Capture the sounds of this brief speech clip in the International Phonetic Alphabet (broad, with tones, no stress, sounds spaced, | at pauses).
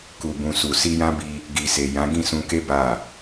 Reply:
k u˨ b ũ˨ s u˨ s i˧ j ã˦ b i˧ | ɡ i˨ s e˨ j ã˨˦ ɡ ĩ˦˨ s ũ˧ k e˦ b a˦˨